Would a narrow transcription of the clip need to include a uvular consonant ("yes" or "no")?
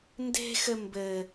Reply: no